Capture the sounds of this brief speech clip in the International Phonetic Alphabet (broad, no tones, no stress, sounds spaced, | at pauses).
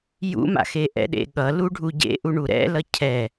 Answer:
j ṵ m a̰ x e ʔ ɛ̰ ɗ ḛ ɠ ʌ l u ɖʱ u ɟ ḛ ʔ u ɳ u ɾ ɛ̰ l ʌ cʰ ɛ